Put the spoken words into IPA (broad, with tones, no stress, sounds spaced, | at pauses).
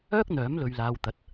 œː˥ k̚ n̪ œː˨˥ m l ɵ˨ ɥ l aː˨ w t̪ ɐ˨˥ t̚